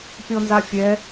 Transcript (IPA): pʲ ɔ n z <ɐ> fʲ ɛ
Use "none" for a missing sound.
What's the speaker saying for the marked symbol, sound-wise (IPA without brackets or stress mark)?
a